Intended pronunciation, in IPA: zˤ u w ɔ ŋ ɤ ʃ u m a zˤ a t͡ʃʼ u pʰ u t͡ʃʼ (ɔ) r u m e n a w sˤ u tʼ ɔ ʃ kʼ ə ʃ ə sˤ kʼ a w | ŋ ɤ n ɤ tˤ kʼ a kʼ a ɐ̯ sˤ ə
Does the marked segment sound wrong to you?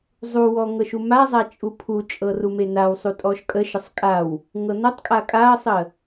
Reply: yes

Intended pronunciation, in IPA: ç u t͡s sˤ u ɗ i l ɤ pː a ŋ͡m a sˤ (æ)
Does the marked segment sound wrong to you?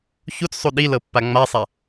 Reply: yes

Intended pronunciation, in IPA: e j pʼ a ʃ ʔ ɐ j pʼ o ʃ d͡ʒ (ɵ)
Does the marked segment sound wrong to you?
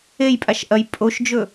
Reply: no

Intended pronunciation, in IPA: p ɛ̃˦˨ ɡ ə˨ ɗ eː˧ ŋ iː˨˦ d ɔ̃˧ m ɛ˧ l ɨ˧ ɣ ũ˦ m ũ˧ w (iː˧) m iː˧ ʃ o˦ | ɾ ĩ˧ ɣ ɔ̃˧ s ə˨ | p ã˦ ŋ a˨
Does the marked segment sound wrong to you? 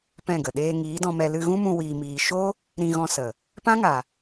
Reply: no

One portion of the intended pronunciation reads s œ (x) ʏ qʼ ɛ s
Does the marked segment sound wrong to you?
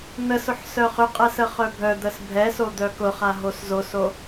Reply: yes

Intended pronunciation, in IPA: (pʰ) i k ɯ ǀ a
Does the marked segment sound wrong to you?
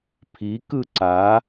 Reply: no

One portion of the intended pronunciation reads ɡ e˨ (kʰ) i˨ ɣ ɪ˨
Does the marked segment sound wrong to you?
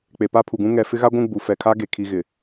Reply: no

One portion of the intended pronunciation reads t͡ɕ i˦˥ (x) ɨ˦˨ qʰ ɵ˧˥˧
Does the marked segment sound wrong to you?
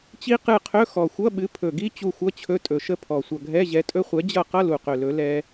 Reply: yes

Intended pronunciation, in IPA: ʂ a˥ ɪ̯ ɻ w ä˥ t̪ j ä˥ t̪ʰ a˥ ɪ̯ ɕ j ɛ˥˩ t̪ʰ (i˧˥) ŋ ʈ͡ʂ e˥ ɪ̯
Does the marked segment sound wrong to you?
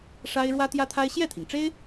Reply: yes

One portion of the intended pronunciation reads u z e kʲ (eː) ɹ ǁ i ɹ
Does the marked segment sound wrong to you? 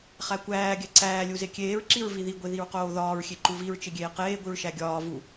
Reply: no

